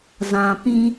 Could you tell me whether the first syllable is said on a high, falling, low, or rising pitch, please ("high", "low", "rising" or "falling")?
low